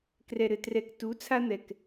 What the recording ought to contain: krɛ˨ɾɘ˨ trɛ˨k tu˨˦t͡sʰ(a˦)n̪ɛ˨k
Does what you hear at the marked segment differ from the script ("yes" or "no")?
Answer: no